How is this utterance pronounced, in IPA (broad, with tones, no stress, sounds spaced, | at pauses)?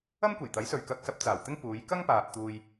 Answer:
ɐ˥ m kʷ e˨˩ j t̪ ɐ˨˥ j s ɵ˨ ɥ k ɐ˧ k̚ s ɐ˧ p̚ t͡s aː˨˩ w t̪ ɪ˥ ŋ p uː˨˧ j k ɐ˥ ŋ p aː˨ p̚ t̪ uː˧ j